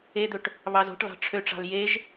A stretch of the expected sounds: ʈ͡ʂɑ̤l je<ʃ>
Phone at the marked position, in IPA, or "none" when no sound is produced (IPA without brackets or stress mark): ʒ